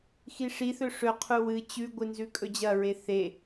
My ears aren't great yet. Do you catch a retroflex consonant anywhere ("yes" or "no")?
yes